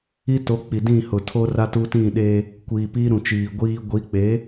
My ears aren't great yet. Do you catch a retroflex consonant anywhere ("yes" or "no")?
no